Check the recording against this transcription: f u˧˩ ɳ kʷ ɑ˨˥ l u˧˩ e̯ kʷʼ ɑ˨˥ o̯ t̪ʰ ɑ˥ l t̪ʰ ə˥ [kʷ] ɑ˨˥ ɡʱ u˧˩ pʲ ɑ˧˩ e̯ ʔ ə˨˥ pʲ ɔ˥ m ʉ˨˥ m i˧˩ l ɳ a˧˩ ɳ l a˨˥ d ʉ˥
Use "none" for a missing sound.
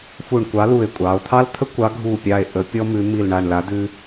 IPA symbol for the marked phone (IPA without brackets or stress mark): kʷ